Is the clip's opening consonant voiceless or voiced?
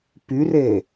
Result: voiceless